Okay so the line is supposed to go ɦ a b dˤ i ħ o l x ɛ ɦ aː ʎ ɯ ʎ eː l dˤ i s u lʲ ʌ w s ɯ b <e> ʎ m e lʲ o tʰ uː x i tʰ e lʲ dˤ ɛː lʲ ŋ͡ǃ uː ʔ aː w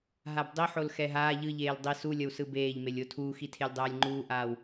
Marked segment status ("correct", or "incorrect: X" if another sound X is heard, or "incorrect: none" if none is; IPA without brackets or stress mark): incorrect: eː